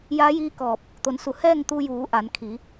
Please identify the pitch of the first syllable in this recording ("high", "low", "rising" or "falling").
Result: rising